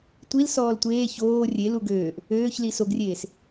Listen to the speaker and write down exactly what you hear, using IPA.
tʷil sɔːltʷeː çoː rʲe luɡøːʔ | øːçli soɡrʲeːs

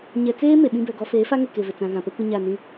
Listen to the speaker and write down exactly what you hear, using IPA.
ɲɛ˨t͡seː˦ me˨ɓĩ˦bɛ˨ɡɔ˦ feː˨˦fa˦ŋe˨ ke˨vɪ˨t͡sã˨ ɣã˨pɛ˦kʷɪ˦ ɲa˦˨nĩ˦

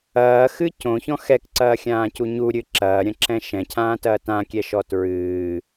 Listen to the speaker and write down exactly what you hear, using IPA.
ɐːxɨ cõçɔ̃ xɛkǀɐːxʲãːcu ɲuɾʲɨ ǁɐːɾʲɐ̃ǁɛ̃ ʃɛ̃cʰãːtɐː tãkʲɛʃɔ tɹɨː

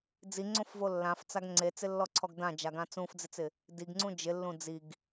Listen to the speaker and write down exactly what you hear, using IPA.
d͡ziŋ͡ǀõfvo lːãft͡saɡ ŋ͡ǀet͡sɪlːɔǀʰɔɡ dãd͡ʒaɡã t͡sũfd͡zɪt͡sɪ | diɡŋ͡ǀũ d͡ʒɪlːũ d͡ziɡ

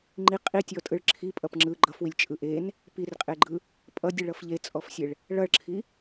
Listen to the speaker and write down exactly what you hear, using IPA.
ŋ͡ǃi qʼitʲɔtʼɯɭ ǁʰipʼʌp ŋ͡ǁɯ ɡ͡ǃʌfwilʲt͡ʃʼɯ ʔen | pirqʼeɡ͡ǃɯ | pʼʌdʲɯɭʌf ʎet͡sʼɔfsʲeɭ | ɭʌɭǁʰi

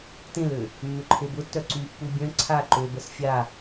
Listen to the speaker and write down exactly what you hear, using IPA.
tẽlø | mːʏǃʰebʊtːœ ǀypːu bʲœ̃ ǀʰa ǃøbəs fʲa

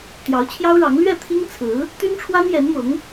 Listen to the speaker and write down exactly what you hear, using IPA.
t̪jɑ˧˥ʊ̯t͡ɕʰjɑ˥ʊ̯ɻɑ˧˥ŋ lɥɛ˥˩t̪ʰi˥ŋt͡sʰɹ̩˧˥ | t̪y˥nʈ͡ʂʰwa˥njɛ˧˥nmʊ˧˥ŋ

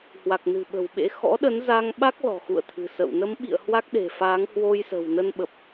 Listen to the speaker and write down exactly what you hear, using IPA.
hwa˨˩k̚nɨ̤˨˩ɓə̤˨˩w ɓḛ˧˥ xɔ̰˧˥ɗə˨˦n za˧ŋɓa˦˥k̚ lɔ̤˨˩xṵ˧˨ə̯t̪ʰɨ̤˨˩sə̰˧˨w nə˨˦mɓḭ˧˨ə̯ hwa˦˥k̚ɗe̤˨˩faː˨˦ŋ hwo˧jsə̤˨˩w nə˧n ɓə˨˩p̚

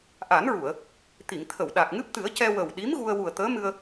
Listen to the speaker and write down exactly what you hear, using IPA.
ʔa˨˩˦nɹu˨˩˨ə̯ | t̪i˨˩˨ŋt̪ʰə˨˩˨wɗa˨˩k̚ ŋɨ˦˥p̚t̪ɨ˨˩˦ə̯cɛ˧ wə˨˩wɗi˧˥m ɣu˧ə̯ wu˨˩ə̯t̪əː˧˥mɨ˧ə̯

